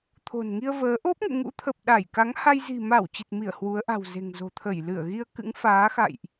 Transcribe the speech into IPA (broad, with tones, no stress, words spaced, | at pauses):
t̪ʰo̤˨˩nŋi˧ə̯vəː˨˦ ʔo˦˥p̚ŋḛ˧˨ŋṵ˧˥t̪ʰə˨˩p̚ ɗa˧˩jka˨˦ŋha˧j zi̤˨˩ma˧˩w t͡ɕi˨˩t̚mi˧˩ə̯ hwu˨˦ə̯ ʔa̤˨˩wze̤˨˩ŋzo̤˨˩t̪ʰə˧˩j lɨ˧˩ə̯ ɣi˧ə̯kɨ̰˧˥ŋfaː˨˦xa̰˧˨jʔ